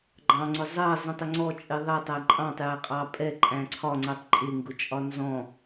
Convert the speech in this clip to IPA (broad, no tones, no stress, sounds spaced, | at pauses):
ɡ͡ǃ ɑ̃ ŋ͡ǀ ʊ zˤ ɜ zˤ ĩ tˤ ɪ ŋ͡ǀ ɔ t͡ʃʼ i ðˤ ɛ tˤ æ ǃʼ ɑ̃ tˤ j æ qʼ ɑ pʼ ɛ ǃʼ æ̃ ǀʰ ɒ ŋ͡ǀ ɜ tˤ ǃʼ ɪ ŋ ɡ ʊ t͡ʃʼ ɒ n z ɔ̃